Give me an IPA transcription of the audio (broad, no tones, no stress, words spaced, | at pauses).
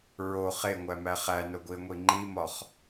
ɹo χeŋʷæmæ χænoɡʷiə̯ŋʷi ŋ͡ǃimɒχ